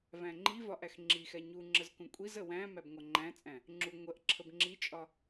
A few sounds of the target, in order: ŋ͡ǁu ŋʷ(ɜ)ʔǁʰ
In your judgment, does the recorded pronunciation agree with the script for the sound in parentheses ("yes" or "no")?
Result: yes